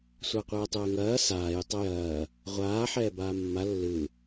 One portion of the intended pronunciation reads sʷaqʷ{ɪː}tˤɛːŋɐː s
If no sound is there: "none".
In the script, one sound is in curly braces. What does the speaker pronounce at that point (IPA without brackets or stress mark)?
ɛː